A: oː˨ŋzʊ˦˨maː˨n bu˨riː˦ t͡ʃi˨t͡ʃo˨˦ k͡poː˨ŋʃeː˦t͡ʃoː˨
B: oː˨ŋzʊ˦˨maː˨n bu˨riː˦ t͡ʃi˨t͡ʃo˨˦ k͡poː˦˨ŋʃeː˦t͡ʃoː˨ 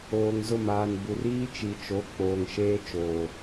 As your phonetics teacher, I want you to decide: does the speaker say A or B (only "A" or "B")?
A